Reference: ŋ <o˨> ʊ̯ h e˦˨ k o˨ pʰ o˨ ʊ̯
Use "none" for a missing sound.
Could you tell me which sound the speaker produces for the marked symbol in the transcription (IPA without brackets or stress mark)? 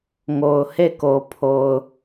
o˨